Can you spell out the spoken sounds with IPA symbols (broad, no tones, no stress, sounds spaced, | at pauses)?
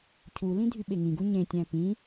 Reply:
cʰ u l ĩ dʱ y ɓ e ŋ ĩ ɡ u ɲ ẽ tʲ æ̃ p ĩ